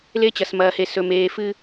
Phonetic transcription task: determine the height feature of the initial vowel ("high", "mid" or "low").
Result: mid